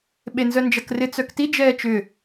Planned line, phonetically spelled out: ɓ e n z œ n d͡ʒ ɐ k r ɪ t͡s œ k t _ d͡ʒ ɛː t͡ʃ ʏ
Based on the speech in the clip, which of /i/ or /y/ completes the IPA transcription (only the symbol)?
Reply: i